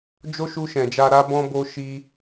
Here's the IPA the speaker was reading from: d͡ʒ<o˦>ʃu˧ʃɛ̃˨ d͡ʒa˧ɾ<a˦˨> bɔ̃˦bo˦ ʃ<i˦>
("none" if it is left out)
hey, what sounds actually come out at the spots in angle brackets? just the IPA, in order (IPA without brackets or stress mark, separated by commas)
o˦, a˦, i˦